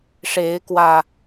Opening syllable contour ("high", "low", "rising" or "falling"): rising